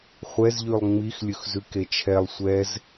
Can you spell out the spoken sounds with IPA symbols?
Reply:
χʷ ɛ z ʎ ʉ lˠ ŋ͡m i x lʲ ɵ x z ʉ k e t͡ʃʰ ɛ lˠ sʷ ɛ z

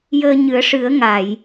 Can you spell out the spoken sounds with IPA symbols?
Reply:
j əː˧ ɲ ɨ˨˩˦ ə̯ ʂ ɨ˨˩˦ ə̯ ŋ a˨˩˨ j

